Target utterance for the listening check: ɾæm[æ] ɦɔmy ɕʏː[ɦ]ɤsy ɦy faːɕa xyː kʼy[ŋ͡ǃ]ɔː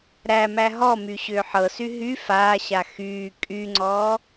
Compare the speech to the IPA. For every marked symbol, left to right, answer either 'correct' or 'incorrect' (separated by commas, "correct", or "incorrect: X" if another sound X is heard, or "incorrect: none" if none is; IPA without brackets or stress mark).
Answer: correct, incorrect: ħ, incorrect: ŋ͡ǀ